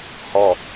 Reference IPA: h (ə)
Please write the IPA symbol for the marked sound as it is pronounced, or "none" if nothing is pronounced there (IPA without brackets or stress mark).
ɔ